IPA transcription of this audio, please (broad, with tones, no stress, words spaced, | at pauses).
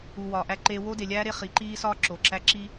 u˨ wɒː˨ʔæ˦ǃeː˦ wo˦de˨lʲæː˦ɾe˦ χi˨˦ǃiː˦sɒː˦ ǁo˨ǁæ˦ǁi˦